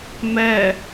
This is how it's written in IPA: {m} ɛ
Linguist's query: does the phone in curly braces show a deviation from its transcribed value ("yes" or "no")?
no